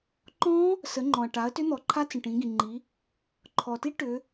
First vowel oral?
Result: no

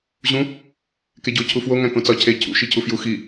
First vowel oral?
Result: no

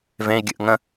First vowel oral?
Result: no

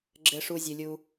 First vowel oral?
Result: yes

